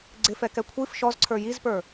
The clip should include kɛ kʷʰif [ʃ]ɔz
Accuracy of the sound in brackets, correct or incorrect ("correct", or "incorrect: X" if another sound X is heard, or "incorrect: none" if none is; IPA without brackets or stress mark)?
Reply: correct